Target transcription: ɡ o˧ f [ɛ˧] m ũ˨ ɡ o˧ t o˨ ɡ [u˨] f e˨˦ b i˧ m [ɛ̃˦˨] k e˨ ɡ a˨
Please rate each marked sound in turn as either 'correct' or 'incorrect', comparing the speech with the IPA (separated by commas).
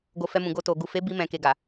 correct, correct, incorrect